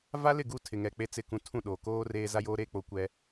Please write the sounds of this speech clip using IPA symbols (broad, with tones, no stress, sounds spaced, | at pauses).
v a˦ l ɪ˦˨ ɡ u˦˨ tʰ ɪ˨ ŋ ɛ˨ k͡p e˦ t͡s ɪ˦˨ k ũ˦ tʰ ũ˦˨ ɗ oː˨ k oː˦ r eː˦ z a˦ j oː˦ ɾ eː˦ k͡p o˨ kʷ ɛ˦